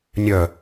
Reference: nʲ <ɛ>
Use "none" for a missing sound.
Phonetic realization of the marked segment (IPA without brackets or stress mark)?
œ